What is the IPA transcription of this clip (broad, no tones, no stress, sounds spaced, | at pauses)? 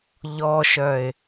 ʎ ɔ ʃ œ ɪ̯